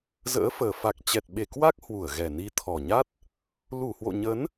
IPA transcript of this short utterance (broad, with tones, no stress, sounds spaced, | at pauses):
z ə̰ː˧˥ f əː˨˩ f a˨˩ k̚ t͡ɕ ɛ˨˩ t̚ ɓ e˧˩ k w a˦˥ k̚ h w u˧˩ ə̯ ɣ ɛ˨˩ n i˨˦ t̪ʰ ɔ˨˩ ɲ a˦˥ t̚ | l u˧˩ h w o̰˧˨ ɲ ə˨˦ n